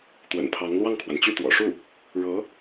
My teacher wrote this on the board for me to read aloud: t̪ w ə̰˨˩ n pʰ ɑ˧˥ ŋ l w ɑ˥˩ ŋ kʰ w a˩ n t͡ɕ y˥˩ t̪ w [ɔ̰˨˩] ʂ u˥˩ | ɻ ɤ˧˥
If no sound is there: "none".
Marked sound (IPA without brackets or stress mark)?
ɔ̰˨˩